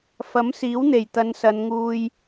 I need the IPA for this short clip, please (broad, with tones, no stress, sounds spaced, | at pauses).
f ɐ˨˥ m s iː˨˥ w n̪ e˨˩ j t̪ ɐ˨˧ n s ɐ˨˧ n ŋ uː˧ j